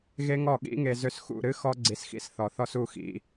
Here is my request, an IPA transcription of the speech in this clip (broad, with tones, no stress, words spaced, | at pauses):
ɣe˦ŋɔ˦˨ ɠḭ˦ŋe˧ zø˧sxṵ˦˨ɾɨ˦ xɔ˦ɡ͡ǀi˧sxḭ˦s θɔ˨θɔ˧s u˦˨xḭ˧